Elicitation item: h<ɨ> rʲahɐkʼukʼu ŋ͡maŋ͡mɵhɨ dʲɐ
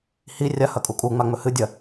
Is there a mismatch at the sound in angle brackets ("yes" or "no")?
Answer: yes